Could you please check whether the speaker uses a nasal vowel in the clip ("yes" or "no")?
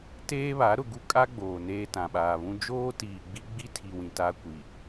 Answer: yes